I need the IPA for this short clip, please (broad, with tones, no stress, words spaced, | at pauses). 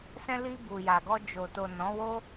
sɛ̃˧li˧ bu˨ja˨ɡɔ˧ d͡ʒo˨ to˨ nɔ̃˨˦wo˦